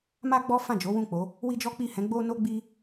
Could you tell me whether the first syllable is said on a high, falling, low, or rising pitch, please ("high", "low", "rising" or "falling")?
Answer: high